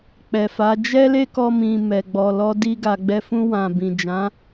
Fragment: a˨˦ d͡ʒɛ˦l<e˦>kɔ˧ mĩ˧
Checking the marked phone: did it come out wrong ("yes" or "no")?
no